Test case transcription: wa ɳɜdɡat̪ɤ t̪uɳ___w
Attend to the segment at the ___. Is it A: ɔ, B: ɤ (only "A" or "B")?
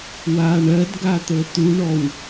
A